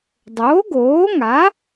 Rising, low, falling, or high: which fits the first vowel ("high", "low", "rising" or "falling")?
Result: rising